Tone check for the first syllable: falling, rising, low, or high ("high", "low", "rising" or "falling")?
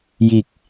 low